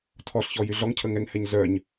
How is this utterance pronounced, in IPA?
tʰɔɬçɔ jyɮɔŋcʰə ŋɛŋhɛɲ zœɲ

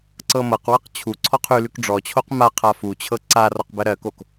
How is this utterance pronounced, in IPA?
ǀɤmɤqwɤq t͡ɕʰu ǀʰɔqʰʉlʉk ɖ͡ʐɔt͡ɕʰoq ma qʰafut͡ɕʰɤ ǀa rɔqbɜɾɜkok

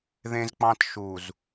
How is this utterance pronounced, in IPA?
ðẽ˦zk͡pɑ̃˦t ʃu˨z

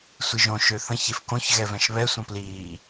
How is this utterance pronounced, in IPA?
sʷiʒõ ʃøθə̃ç efkõç ɣɛvɛ̃ʃβɛ sʷə̃pliː

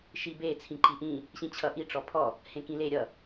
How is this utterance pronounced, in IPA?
ʃibe t͡sʰĩǃiʔĩ | ɕĩt͡ɕʰʌʔi ʈ͡ʂɔpʰɔ | hẽkĩle ɾʲʌ

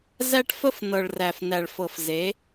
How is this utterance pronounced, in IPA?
zæ˦ʈfə˦f nɤ˨ɭræ˨fnæ˨ɭ fɤ˨fze˨˦

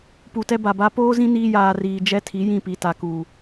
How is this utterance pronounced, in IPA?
pu˨tɛ˦ba˨ba˦ poː˦zĩ˦ niː˦jaː˨riː˨ d͡ʒɛ˦tʰi˨˦ jĩ˦˨pi˨ta˨kuː˨

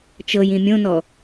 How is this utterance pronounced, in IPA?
t͡ʃɤjĩ mʲõnɔ

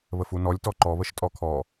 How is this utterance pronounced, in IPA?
βəfunɔlʲ tɔǃɔβəʃ tʼɔkʰɔ

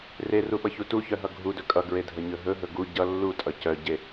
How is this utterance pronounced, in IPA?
reruɓʌçu tuçœɦʌ ɡʱudɵ kʼʌɡɹedʱəɲɵ ɦɵɦɵ ɡu ɟʌ lːutʼʌ cœɟe

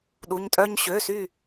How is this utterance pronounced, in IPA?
ɗu˩˧˩ɲtʼœ˦ɲ ɕø˩˧˩sy˧˩

